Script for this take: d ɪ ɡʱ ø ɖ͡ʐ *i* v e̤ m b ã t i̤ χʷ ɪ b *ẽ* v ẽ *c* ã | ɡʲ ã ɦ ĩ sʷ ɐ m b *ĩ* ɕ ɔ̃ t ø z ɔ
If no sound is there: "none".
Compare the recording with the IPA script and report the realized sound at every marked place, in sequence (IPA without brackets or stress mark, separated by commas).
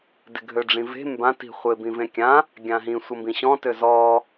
ĩ, ĩ, kʲ, ĩ